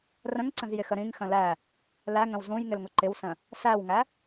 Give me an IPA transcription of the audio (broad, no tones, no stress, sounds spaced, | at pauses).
r ə̃ ŋ ǀ ə̃ z j ɪ x ə ɾ ĩ ŋ x ə̃ l æ | l æ ŋ ə̃ w z ũ j ŋ ɪ l ŋ ʊ ǃ ɪ w s ə̃ | s æ w ŋ æ